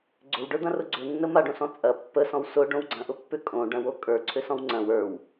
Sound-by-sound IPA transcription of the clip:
ɡ͡ǀ ʏ w ɖ ə˞ d̪ ɐ̃ r ʊ ɡ͡ǀ ʏ nː ə m a ɖ õ s ɔ̃ t͡sʼ ɐ pː ə s ɔ̃ w s ʊ ɖ õ w ɡ͡ǀ ɐ̃ ʔ ʊ pː ʏ kʼ õ ɖ ɐ̃ w o kʼ ə˞ ǀʰ ʏ s ɔ̃ w ŋ͡ǀ ɐ̃ w ə˞ w

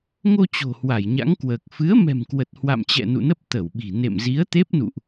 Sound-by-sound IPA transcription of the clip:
ŋ o˧ t͡ɕ o̤˨˩ h w a˧˩ j ɲ a̰˧˥ ŋ k w əː˨˩ k̚ f ɨ˨˦ ə̯ m ɛ̤˨˩ m k w ə˨˩ t̚ h w a̰˧˨ m t͡ɕ ɛ̰˧˨ n ṵ˧˨ n ə˦˥ p̚ t̪ ə˧˩ w ɓ i̤˨˩ n ḛ˧˨ m z i˨˦ ə̯ t̪ e˦˥ p̚ n ṵ˧˨ ʔ

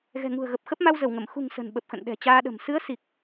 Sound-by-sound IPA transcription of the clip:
ɣ ɛ̤˨˩ ŋ ṳ˨˩ ə̯ ɣ ə˨˩ p̚ x ə˦˥ p̚ m a˧ w z ə˧˩ w ŋ ə˧˩ m x ṳ˨˩ ŋ s ə̤˨˩ n ɓ ə˨˩ p̚ x ə̰˧˨ n ɗ ɛ̤˨˩ t͡ɕ aː˧ ɗ ə̤˨˩ m s ɨ˨˦ ə̯ s i˨˩ k̚

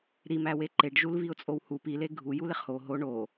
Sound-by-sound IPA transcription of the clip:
ɾ i m æ w e ǃ e ɖ ʒ u l v i ʊ̯ t͡sʼ o w h u p i l e ɡʱ u j u l e χ h o ɦ o ɳ o

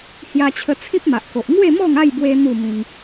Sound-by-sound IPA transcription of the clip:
h j a˧ t͡ɕʰ ə˧ t͡sʰ ĩ˦ p̚ m a˨ ʔ k o˨ ʔ ŋ w e˥˧ m ɔ˥˧ ŋ a˥˧ j b w e˧ n̪ u˥˧ m ĩ˧ ŋ

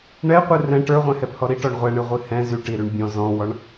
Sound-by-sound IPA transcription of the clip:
ɳ ɛ qʷ ɨ r ɛ̃ ʈ ə˞ ʁʷ ɛ̃ h ɛ p h ɔ ɾ i ʈ ɔ ɳ ʁʷ ɛ ɳ ɨ ʁʷ ɨ h ɛ̃ z y ʈ i ɾ y ɳ bʲ ɔ̃ z ɔ̃ w ɔ ɳ

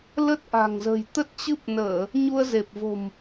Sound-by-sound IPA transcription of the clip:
l ə˦˥ t̚ ʔ a̤˨˩ ŋ z ə̤˨˩ j t̪ ə˦˥ t̚ t͡ɕ ɨ˦˥ p̚ n əː˧˩˨ | ɲ u˧ ə̯ z e˨˩ p̚ v o̤˨˩ m

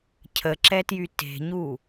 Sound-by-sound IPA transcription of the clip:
cʰ ə ǁ ɛ t j y t e̤ ɲ u

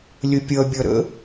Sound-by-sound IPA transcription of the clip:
lʲ ə pʲ ʌ bʲ ʌ ɾ ə̰

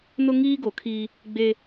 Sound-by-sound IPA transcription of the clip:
n ʊ˦ ŋ iː˦ ɡ o˨ kʰ iː˦ | ɡ͡b e˦

